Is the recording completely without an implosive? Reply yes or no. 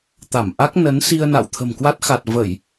yes